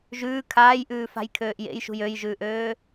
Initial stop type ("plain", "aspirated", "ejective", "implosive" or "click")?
aspirated